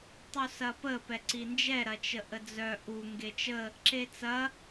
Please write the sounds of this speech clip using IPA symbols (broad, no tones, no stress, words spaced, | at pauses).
tˤusɐpə pɛǀind͡ʒɛ ɾɐt͡ʃəʔəd͡zœ ʔu ŋɡet͡ʃə | ǁet͡sɐ